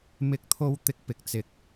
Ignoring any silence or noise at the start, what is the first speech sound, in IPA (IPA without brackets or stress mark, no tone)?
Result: m